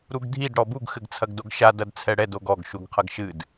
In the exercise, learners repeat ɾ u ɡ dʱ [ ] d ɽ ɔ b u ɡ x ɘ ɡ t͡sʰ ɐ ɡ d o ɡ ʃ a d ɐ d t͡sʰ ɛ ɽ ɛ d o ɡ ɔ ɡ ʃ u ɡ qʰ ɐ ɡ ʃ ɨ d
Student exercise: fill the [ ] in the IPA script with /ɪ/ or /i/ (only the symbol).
i